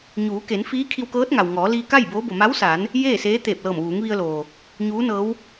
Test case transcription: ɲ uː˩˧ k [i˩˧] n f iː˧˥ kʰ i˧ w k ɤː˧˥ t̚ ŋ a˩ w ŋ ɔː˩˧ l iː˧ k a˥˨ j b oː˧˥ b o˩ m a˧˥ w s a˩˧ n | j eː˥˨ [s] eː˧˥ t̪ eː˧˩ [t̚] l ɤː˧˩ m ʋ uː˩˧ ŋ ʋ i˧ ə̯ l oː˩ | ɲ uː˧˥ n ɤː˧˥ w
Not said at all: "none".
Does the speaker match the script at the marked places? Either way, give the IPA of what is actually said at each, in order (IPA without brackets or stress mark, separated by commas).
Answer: e˩˧, s, p̚